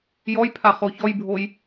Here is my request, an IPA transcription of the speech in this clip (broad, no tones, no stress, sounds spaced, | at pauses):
j ɔ j pʰ a χ o ç ɔ j bʱ o j